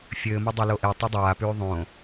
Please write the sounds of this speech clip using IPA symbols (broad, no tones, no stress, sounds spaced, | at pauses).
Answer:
fʲ ɘː m o dˤ e l o ʔ e tˤ o dˤ aː p ʉː ðˤ õ